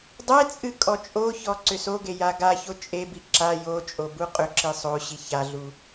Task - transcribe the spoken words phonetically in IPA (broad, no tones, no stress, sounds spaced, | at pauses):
dˤ e t͡sʼ ɨ kʼ ɔ t͡ʃʼ o ç ɔ ǀ ʏ s o ɡ e j a ɡ a ç o t͡ʃʼ e b i ǁ a j o t͡ʃʼ o b u qʼ ʏ ǁ i sˤ o ɕ i ç a ɮ u